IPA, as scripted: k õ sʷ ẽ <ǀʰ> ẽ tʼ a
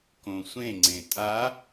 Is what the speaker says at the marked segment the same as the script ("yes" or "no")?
no